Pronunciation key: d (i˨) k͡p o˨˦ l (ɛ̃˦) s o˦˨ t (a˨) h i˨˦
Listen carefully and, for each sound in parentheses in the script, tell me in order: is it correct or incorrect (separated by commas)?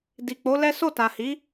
correct, incorrect, correct